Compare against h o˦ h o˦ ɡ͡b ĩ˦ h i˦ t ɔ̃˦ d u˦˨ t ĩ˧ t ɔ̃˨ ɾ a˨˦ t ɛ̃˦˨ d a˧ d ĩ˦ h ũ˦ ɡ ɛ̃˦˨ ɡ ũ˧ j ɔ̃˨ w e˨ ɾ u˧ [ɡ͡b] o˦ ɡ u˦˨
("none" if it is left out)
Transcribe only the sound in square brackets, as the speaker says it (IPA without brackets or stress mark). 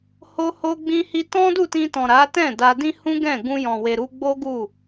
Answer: ɡ͡b